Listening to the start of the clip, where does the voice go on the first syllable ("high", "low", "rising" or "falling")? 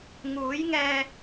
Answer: rising